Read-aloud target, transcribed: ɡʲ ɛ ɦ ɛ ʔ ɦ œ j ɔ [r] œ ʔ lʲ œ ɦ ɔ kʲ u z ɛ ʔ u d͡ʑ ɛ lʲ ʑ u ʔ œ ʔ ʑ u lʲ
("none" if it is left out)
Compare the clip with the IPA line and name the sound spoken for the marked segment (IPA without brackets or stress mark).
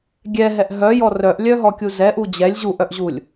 r